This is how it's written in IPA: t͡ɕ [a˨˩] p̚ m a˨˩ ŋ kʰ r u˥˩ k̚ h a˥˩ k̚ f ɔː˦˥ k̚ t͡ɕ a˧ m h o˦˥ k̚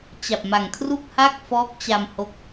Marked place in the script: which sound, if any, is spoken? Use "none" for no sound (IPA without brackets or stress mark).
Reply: a˨˩